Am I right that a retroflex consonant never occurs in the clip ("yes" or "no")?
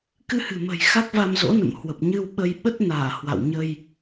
yes